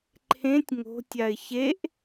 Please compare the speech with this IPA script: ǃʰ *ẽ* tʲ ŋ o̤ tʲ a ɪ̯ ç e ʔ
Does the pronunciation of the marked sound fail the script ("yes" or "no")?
no